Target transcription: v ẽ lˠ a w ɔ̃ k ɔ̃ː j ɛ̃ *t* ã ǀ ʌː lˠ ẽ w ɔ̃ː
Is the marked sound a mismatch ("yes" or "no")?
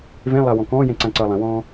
yes